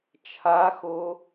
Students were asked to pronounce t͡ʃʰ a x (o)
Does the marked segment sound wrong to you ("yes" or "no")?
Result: no